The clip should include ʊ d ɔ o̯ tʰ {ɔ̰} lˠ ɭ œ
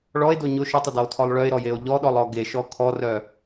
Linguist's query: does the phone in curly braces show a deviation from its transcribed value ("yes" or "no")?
yes